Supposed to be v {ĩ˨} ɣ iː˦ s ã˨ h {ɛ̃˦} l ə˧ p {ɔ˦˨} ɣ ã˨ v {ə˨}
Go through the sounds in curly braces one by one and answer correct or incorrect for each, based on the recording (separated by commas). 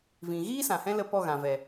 correct, correct, correct, incorrect